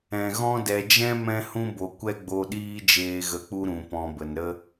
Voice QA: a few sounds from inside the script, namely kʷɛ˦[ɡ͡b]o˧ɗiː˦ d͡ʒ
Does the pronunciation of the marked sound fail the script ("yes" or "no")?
no